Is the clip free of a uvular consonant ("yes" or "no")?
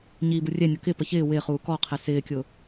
no